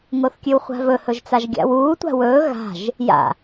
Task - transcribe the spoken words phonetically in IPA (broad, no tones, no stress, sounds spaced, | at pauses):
ŋ o θ kʲ ʉ w χʷ a̤ v ɵ h ɵ ʒ t͡s a ʒ ɡʲ a̰ w uː tʷ a̤ w ɵː ɣ a̤ ʒ | j a̰